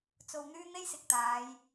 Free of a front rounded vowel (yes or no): no